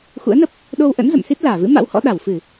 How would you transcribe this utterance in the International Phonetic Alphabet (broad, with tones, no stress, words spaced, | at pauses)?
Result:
xṵ˧˥ə̯nə˦˥p̚ | ɗo˧wʔə̰˧˥n zə̰˧˨msi˦˥t̚laː˧˩vɨ̰˧˥ ma̰˧˥whɔ̰˧˥ɗa˧˩wfɨ˧˩˨